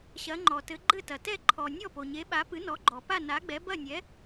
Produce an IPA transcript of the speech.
ɕɐ˩˥ŋ͡ǃɔ˩tɘ˩˥ ɡ͡ǃɘ˥˩tɐ˩tɛ˥˩ ǃʰɔ˩ nʲɔ˥˩po˩ɲe˩˥ɓa˩˥ pɨ˩˥nɔ˩˥ɡ͡ǃɔ˩ pa˥˩na˩˥ɡ͡bɛ˩˥ bɐ˥˩nʲɛ˩˥

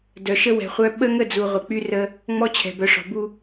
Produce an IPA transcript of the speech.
dœ˨ʃə˦ wɛ̤˨ χʷœ˦ ɓə˦ŋə˦˨d͡zu˨ ʁʷə˨k͡py˦rə˦ | ŋ͡mɔ˦t͡ɕʰɛ̤˨ bœ˨ʂɔ̤˨bu˦

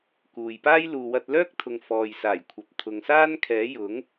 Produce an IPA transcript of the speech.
kuː˨jpaː˥j luː˨wɐ˧t̚lœː˥k̚t̪ʰʊ˨ŋ fɔː˨jsaː˨˩jkʷʰɐ˨p̚ t̪ʰʊ˨ŋsaː˥nkʰɛː˨˥ jʊ˨˥ŋ

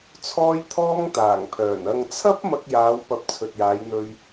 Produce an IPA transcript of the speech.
t͡sʰɔː˥jt̪ʰɔː˥ŋt̪aː˨˩ŋpʰœː˨˩n ɐ˨ŋt͡sʰɐ˥p̚ mɐ˧k̚jaː˨˧wpɐ˨p̚ t͡sʰɵ˨t̚jaː˨˧jn̪ɵ˧ɥ

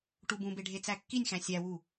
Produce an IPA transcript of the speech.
ʈubũbe ɖʱet͡sækːinʲxæ̃ sʲæwu

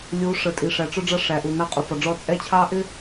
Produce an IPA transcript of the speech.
lʲu˨˦ ʂə˨tʼi˨ʂæ˨ ʈ͡ʂʊ˦ɖ͡ʐʌ˦ ʂæ˨ʔu˨ nɑ˦qʼu˨fɒ˨ɖ͡ʐɔ˦ t͡sʼɛ˦t͡ɕʰɑ˦ ʔɪ˦

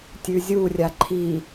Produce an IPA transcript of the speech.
tʲʉzʲurʲa ǃʰi

